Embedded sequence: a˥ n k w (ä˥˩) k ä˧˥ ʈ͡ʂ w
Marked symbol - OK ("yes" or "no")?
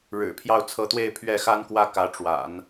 yes